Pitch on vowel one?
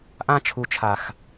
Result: high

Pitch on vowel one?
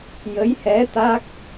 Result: rising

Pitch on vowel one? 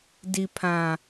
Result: low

